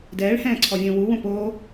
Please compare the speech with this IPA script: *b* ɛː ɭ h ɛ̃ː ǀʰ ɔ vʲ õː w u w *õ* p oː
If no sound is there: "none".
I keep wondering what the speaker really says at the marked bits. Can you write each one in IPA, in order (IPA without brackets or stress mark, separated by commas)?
d, õ